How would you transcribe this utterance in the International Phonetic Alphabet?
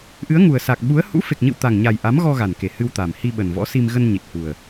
ʔ ɨ˨˦ ə̯ ŋ u˨˩ ə̯ s a˨˩ k̚ ɓ u˨˦ ə̯ h ṵ˧˥ f e˨˩ k̚ ɲ ɨ̰˧˨ w t̪ a˨˩ ŋ ɲ a˨˩ j ʔ a˨˦ m ɣ ɔ˧ ɣ a˨˩ n k e˨˩ h ɨ˧ w t̪ a˨˩ m h i˧ ɓ ə˨˩ n v ɔ̰˧˥ s i˧ m ɣ ə˧ n ɲ i˨˩ t̚ h u˨˩ ə̯

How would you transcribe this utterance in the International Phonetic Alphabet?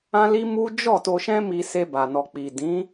ã˦ l i˦ m u˦ d͡ʒ ɔ˦˨ t o˧ ʃ ɛ̃˦ m i˧ s e˧ b a˨ n ɔ˨ k͡p i˨ d ĩ˨˦

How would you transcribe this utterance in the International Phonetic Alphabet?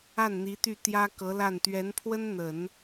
a˥˩ n n̪ i˧˥ t̪ y˥˩ t̪ j ä˥ k ɤ˧˥ l a˥˩ n t̪ ɥ ɛ˧˥ n pʰ w ə˥ n n̪ ə˨˩˦ n

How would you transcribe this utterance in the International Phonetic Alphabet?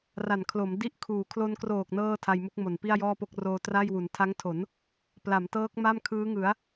r a˨˩ n kʰ l o˩˦ m d i˦˥ ʔ kʰ uː˩˦ kʰ l o˧ n k r oː˨˩ k̚ n ɤː˥˩ tʰ a˧ j m u˦˥ k̚ m o˨˩ n p i˥˩ a̯ j ɔː˥˩ p o˥˩ k̚ r oː˧ t r a˥˩ j w u˩˦ n tʰ a˦˥ ŋ tʰ o˩˦ n | p l a˩˦ m t ɤː˦˥ k̚ m a˥˩ m kʰ ɯː˦˥ ŋ ɯ˩˦ a̯

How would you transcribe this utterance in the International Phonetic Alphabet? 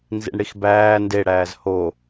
n z ḭ ɳ ɽ i x b æː n d e ɽ æː z h o

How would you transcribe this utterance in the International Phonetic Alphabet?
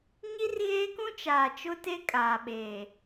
ɲ i˦ r ɣ eː˦ k ũ˦ t͡ʃ aː˨ t͡ʃ ʊ˦ t e˦ kʼ aː˨ ɓ eː˨

